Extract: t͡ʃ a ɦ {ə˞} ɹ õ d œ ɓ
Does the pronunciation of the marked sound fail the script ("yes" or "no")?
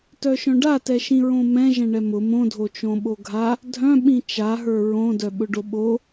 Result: no